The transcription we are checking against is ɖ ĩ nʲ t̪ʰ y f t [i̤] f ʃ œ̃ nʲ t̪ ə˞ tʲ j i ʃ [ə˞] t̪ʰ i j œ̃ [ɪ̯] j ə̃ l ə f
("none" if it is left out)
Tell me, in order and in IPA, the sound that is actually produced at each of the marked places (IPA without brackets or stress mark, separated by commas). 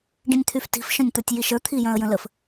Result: i̤, ə˞, ə̯